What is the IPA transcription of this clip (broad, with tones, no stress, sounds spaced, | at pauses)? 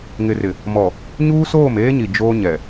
ŋ ɪ˨ r ɪ˨ | m ɔ˨ | ɲ uː˦ s oː˦˨ m eː˦ ɲ i˨ d͡ʒ oː˦ ɲ ɛ˨